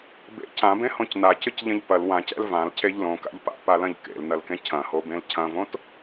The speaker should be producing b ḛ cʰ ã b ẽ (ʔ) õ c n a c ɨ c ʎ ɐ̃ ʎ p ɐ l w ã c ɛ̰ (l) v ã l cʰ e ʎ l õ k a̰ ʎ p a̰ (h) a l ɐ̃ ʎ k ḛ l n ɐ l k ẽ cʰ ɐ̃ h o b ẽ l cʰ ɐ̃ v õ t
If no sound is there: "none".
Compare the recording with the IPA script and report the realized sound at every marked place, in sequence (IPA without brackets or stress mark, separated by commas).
h, l, p